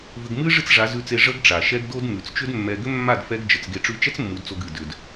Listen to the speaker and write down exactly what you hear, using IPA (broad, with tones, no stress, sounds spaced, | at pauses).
v ʏ˧ ɡ m ɨ˦ ʐ ɨ˦ t͡s ʐ a˨˦ z ʉ˧ t͡s e˧ ʐ ə˦ ɡ ʈ͡ʂ a˨ ʃ ɛ˦ ɡ d o˦ d m ʉ˨ t͡s t͡ʃ ʏ˦ d mː ɛ˧ ɡ ʏ˦ mː a˦˨ d f ɛ˦ ɡ d͡ʒ ə˨ t͡s ɡ e˧ ʈ͡ʂ ʉ˧ t͡ʃ ɛ˦ t͡s mː u˨˦ d t͡s o˧ ɡ ɨ˨ d ʏ˨ d